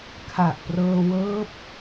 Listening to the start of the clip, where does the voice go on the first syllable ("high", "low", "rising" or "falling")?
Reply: low